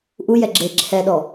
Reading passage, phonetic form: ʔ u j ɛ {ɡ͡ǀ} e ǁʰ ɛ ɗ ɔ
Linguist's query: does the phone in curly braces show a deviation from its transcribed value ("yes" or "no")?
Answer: yes